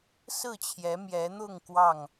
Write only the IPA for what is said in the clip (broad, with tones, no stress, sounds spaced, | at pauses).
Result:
s ɹ̩˥˨ t͡ɕʰ j ɛ˨˦ m j ɛ˨˦ n̪ ʊ˥˨ ŋ k w ɑ˥˨ ŋ